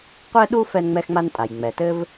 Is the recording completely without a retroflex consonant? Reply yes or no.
yes